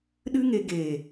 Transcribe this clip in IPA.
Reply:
ɗ ɨ˦ ŋ e˧ ɡ eː˨

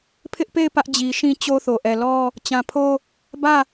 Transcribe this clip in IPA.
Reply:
pʰ ɪ˦ ʔ p e˦˨ ɪ̯ p ä˦ ʔ d͡ʑ i˨ ʃ ĩ˦ t͡ɕ o˦ θ o˨ ʔ ɛ˨ l ɔ˦ | t͡ɕ ã˨ pʰ o˦ | b ä˦˨

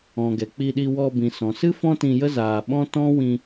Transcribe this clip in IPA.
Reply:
ɔ̃˨ ɡ ɛ˨ k͡p i˧ ɗ i˧ w ɔ˧ b ĩ˨ s ɔ̃˨ s ɨ˦ f ɔ̃˦ t ĩ˧ j ə˦ z aː˨ ɓ ɔ̃˦ t ɔ̃˦ w ĩ˧

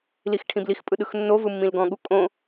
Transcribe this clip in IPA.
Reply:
l i x ʈʰ ĩ b l i x pʼ ɯ ɗ ɯ x nː o v ɯ mː ĩ l ɡ ɔ̃ ɠ u kʼ õ

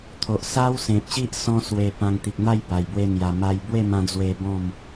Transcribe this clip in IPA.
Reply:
t̪ʰ o˨ ʔ s a˦ w s ẽ˨ p̚ ɕ i˦ ʔ s ɔ̃˦ s w e˧ p ã˧ ŋ t̪ i˨ k̚ n̪ a˥˧ j b a˨˩ j b w e˧ n̪ j a˨˩ m a˧ j b w e˥˧ m ã˧ d͡z w e˧ b ɔ̃˥˧ m

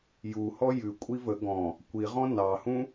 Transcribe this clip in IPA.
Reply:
j u h ɔ j ʉ kʷʼ i v ə ɡ ɔ̃ | kʷ i ʁ ɔ̃ n ɑ h ũ

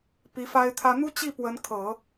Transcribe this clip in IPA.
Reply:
p i˧˥ f a˥ ɪ̯ t̪ʰ ä˥ n̪ u˥ t͡ɕ i˥˩ p w ə˧˥ n kʰ ɤ˨˩˦

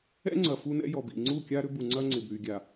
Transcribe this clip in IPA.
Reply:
ɛ̰˦ ŋ͡ǀ ɐ˨ f u˦ n ɛ̰˦ j ɔ˨ b ḭ˨ ŋ͡ǀ u˦˨ kʲ a˦ ɾ ʏ˦ b u˨ ŋ͡ǀ ɐ˦ ŋ͡ǀ ɪ˨ b ɾ y˨ ɡʲ a˨

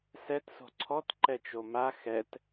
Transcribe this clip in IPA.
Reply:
s ɛ t s o̤ ǀʰ ɔ t ǃ ɛ t͡ʃ o m a x ɛ t

